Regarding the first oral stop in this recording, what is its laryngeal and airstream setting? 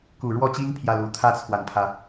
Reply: plain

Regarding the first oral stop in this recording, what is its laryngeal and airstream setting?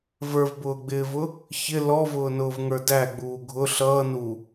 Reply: plain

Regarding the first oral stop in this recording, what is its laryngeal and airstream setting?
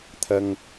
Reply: aspirated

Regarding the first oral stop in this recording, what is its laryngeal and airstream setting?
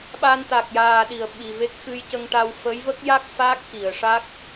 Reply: implosive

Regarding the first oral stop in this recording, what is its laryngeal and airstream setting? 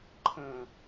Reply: click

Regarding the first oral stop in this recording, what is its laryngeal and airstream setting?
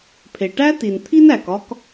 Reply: aspirated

